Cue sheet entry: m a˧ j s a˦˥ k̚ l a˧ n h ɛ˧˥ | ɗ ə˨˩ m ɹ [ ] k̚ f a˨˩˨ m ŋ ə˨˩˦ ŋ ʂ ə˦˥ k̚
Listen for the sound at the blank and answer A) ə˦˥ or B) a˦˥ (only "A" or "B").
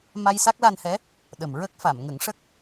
A